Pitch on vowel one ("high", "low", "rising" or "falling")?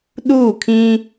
falling